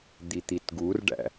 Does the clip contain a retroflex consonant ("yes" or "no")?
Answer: yes